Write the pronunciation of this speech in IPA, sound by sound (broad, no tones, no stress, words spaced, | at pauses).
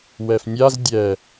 wɛfnʲaz dʲɛ